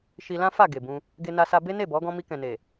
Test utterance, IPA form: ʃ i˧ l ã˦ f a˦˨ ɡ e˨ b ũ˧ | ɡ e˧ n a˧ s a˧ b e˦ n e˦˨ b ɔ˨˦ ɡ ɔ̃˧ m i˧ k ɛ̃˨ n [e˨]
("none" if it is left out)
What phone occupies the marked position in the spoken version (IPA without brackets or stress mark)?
e˨